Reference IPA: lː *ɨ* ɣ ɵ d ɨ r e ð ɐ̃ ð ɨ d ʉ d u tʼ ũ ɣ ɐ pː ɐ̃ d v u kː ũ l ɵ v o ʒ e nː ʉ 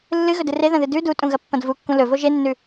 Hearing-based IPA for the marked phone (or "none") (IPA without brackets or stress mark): ɨ